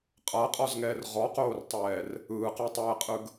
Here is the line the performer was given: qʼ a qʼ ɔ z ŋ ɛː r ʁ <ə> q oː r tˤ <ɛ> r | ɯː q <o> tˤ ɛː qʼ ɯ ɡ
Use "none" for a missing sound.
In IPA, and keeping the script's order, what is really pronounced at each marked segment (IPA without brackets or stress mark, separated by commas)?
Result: ɔ, ɛː, o